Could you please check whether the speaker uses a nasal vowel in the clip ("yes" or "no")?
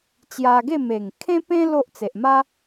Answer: yes